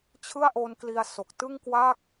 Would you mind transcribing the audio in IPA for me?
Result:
t͡ɕʰ ɯ˥˩ a̯ ʔ o˧ n k l i˧ a̯ s o˨˩ k̚ t ɯ˥˩ ŋ k w a˥˩ k̚

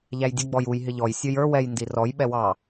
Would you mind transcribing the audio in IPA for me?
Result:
ʎ æ j dʲ ə ɡ͡b ɔ j u j ɦ ɪ ʎ ɔ j sʲ ə˞ j ə˞ w ɛ j n d i r ɔ j ɓ ɛ w ɑ

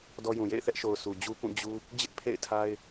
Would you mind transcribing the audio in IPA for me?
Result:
d ɔ˦ j ũ˨ j ḛ˦˨ ɪ̯ θ ɛ˦ ʔ ʃ o˨ ʊ̯ s u˨ d͡ʑ u˦ p ũ˦˨ d͡ʑ u˦ | d͡ʑ ɪ˦ ʔ pʰ ḛ˦˨ ɪ̯ tʰ a˦ ɪ̯

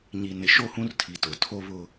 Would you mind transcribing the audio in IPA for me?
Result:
ɲ i˨ n ɪ˨ ʃ o˦˨ h ũ˦ r tʰ i˨ t ʊ˨ tʰ o˦ β ʊ˦

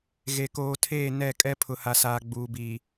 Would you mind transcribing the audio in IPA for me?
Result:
ɣ e˨ k oː˨ tʰ eː˦˨ n ɛ˦˨ kʼ ɛ˦ pʰ ʊ˨ h a˨ s aː˨ ɡ͡b uː˨ b iː˨

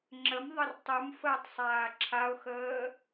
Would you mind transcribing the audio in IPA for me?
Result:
ŋ͡ǁ ə m ðˤ ə r tˤ u m f əː tˤ sˤ aː ǁʰ a ʊ̯ x əː

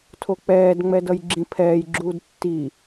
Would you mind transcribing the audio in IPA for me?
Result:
tʰ o k͡p ɛː d ŋ͡m ɛ d ʌ j ɡ͡ǁ ĩ pʰ ɛː j ɡ͡ǁ uː d tː i

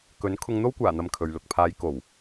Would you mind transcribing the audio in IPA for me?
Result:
k ɵ˨˥ n kʰ ʊ˧ ŋ n̪ o˥ w kʷ aː˨˩ n̪ ɐ˨ m kʰ ɵ˨ ɥ l ʊ˨ k̚ pʰ aː˨˧ j k o˨˩ w

